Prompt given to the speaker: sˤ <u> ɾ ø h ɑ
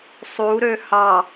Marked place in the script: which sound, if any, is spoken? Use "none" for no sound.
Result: u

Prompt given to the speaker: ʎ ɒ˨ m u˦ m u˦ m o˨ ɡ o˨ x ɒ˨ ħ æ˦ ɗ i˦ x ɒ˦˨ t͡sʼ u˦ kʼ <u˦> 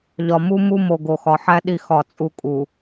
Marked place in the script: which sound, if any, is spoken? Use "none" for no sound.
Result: u˨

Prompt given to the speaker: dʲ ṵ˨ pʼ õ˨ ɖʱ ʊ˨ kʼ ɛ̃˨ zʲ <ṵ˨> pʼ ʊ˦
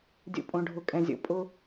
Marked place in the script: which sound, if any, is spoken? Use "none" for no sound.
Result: o̰˨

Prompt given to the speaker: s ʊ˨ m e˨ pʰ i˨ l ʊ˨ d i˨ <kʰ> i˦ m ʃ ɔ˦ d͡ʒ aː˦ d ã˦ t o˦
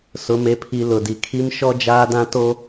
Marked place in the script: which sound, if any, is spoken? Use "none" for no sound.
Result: kʰ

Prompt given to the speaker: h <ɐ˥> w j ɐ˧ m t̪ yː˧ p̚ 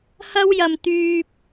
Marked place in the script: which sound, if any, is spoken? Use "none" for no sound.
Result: ɐ˥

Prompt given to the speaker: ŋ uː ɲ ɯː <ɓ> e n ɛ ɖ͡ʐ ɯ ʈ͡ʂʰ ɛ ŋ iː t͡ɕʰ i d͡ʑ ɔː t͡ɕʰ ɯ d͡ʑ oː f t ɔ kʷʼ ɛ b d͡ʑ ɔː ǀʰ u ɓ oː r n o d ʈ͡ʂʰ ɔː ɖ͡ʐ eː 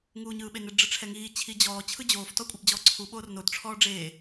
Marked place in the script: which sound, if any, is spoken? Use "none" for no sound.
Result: ɓ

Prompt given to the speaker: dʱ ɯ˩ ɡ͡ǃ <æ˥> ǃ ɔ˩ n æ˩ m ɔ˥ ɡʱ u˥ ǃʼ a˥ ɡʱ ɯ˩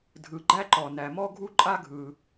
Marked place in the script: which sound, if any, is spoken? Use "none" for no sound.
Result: æ˥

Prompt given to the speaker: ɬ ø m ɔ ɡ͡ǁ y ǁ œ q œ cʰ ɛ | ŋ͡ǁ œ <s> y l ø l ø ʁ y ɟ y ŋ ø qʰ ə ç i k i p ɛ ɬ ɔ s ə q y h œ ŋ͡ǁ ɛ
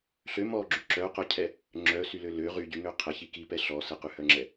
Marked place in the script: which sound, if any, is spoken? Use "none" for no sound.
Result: s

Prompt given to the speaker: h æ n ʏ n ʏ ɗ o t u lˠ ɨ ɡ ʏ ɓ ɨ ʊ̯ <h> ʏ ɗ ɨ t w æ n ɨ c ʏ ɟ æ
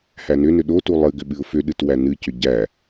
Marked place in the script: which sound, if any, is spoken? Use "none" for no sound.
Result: f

